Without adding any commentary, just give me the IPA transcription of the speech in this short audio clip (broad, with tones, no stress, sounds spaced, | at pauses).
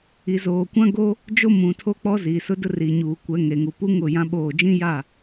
i˨ z oː˨ kʷ ã˦ ɡ o˦ | d͡ʒ o˦ m ũ˨ tʰ o˦ k͡p ɔ˦ z iː˨ s ʊ˦ d ʊ˦ r i˨ ɲ uː˨ kʷ ɛ˨˦ ŋ e˨ ŋ u˨ p u˦ ŋ ʊ˦˨ j ã˦ ɓ oː˦˨ d͡ʒ ĩ˦ j a˦˨